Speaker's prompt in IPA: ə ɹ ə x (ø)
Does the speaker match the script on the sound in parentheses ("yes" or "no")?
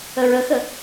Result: no